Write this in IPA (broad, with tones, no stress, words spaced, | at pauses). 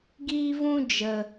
ɡiː˦vũ˦ d͡ʒə˧